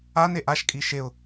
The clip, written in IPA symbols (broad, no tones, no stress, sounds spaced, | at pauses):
a n e ʔ a ʃ kʼ i ʃ e ʊ̯